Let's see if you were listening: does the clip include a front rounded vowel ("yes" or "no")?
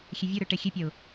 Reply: yes